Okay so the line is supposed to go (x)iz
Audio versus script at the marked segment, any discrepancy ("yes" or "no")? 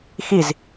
no